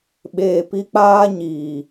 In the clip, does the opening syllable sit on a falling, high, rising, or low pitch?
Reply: low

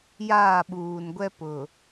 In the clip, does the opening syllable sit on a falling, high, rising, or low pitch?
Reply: falling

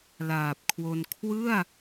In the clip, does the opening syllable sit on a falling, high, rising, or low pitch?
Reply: low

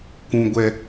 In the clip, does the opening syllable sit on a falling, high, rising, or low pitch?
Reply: high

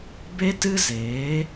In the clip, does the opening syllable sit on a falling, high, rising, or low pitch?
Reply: high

